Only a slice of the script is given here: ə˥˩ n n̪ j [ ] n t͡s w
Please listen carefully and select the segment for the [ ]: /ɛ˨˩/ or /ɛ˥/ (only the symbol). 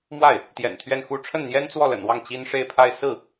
ɛ˥